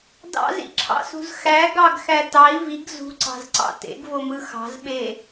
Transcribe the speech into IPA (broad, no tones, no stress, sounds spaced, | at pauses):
d ɑ̰ z ḭ ǁʰ ɑ̰ s ṳ z x æ ɡ ɑ ɡ x æ t ɑ i̯ v i ɡ z ṳ ǀ ɑ̤ z ǀ ɑ̰ t ḛ ɡ v o m ɯ x ɑ̤ z ɓ e